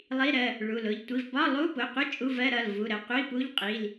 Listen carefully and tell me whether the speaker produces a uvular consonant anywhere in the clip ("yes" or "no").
yes